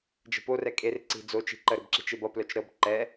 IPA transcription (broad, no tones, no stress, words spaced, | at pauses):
d͡ʒə̤porɛ kʼerǀi̤ d͡zot͡ʃi̤ ǃəɾəbǁi̤t͡ʃ ebʌ plœt͡ʃɾɤb ǃɛ